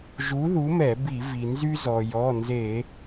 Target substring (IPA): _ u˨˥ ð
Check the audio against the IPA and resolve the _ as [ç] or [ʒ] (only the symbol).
ʒ